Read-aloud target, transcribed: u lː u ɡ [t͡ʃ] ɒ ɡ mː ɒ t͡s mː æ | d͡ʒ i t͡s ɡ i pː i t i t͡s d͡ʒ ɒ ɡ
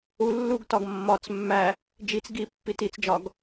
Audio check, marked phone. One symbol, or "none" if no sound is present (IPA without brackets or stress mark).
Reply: t